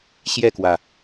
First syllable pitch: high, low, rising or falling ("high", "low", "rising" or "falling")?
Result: falling